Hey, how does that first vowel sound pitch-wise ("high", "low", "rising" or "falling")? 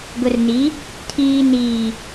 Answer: low